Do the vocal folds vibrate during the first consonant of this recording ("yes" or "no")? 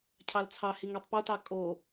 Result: no